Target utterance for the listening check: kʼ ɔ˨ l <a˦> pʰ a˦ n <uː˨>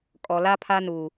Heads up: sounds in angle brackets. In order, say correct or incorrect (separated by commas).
correct, correct